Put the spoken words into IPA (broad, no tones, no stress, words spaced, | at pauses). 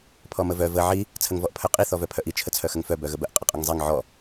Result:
pʰɔməvœ və ʕi | t͡sʰəŋvɔʔpʰœqʼi θɔvœpʰœʔi t͡ʃʰət͡sʰœxəŋfœ bœɣəbəʔ qʼəqʼəŋzˤiŋ ʕɔ